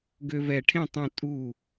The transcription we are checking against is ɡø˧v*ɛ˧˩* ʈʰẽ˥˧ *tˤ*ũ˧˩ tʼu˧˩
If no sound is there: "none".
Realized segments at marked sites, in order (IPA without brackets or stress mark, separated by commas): ɛ˧˩, tˤ